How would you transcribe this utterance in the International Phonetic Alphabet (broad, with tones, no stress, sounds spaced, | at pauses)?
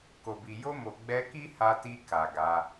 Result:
k o˨ b i˨ j o˧ m o˨ ɡ͡b ɛ˧ k i˦ h a˧ t i˧ k a˨ ɡ a˨˦